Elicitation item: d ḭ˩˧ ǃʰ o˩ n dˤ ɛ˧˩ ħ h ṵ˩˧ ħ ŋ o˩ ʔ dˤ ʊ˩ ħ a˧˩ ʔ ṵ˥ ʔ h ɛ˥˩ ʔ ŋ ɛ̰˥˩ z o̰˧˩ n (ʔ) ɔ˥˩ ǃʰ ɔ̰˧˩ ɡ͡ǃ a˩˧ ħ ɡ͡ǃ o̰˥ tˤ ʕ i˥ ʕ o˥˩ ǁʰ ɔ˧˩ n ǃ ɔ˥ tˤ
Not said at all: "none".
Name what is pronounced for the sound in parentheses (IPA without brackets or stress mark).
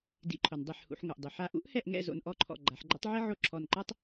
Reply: ʔ